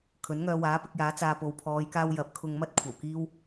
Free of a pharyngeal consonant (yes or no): yes